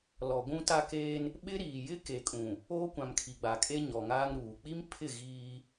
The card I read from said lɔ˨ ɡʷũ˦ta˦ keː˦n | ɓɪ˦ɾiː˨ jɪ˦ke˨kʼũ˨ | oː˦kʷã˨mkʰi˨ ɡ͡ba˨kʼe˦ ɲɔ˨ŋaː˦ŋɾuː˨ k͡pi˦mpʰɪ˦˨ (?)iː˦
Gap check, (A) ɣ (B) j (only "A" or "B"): A